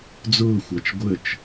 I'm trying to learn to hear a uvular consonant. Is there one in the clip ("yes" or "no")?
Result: no